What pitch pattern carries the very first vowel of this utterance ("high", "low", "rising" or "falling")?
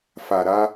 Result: low